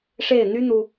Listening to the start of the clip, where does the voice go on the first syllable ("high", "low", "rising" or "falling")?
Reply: falling